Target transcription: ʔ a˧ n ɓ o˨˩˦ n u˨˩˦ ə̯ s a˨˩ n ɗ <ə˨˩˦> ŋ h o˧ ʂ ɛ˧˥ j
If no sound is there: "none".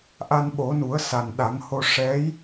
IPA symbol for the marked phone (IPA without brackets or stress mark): a˨˩˦